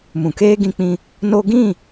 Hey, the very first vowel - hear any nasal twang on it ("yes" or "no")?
yes